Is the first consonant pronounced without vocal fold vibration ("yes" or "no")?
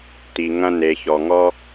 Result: yes